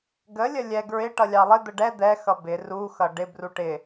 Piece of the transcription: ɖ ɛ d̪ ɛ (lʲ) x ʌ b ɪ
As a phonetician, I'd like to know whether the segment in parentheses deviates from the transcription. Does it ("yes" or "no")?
yes